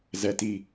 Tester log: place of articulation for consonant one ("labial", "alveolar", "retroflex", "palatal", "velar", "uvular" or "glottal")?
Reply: alveolar